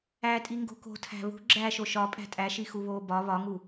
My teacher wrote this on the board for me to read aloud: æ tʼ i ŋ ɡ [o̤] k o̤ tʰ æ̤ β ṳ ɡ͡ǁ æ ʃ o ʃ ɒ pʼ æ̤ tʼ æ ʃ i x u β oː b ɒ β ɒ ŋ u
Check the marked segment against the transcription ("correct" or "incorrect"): correct